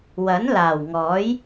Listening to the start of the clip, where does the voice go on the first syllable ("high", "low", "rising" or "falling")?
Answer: rising